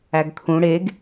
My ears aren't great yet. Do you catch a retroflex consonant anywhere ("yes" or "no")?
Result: yes